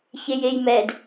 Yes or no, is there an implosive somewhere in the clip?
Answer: no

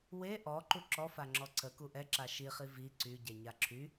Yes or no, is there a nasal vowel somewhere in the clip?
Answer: no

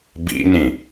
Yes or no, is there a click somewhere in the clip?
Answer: no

